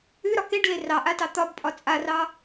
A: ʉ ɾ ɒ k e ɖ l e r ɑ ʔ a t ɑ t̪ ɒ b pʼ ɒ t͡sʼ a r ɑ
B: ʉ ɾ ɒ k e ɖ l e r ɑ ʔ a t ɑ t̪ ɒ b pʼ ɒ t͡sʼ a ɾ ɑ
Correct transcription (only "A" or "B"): A